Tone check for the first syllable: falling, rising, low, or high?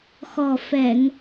low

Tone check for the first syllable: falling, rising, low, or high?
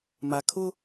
low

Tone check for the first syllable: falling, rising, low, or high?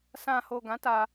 low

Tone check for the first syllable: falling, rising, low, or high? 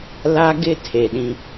high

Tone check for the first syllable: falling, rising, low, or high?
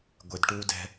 high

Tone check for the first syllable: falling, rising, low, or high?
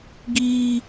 high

